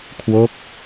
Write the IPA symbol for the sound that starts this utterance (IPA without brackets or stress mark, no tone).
kʰ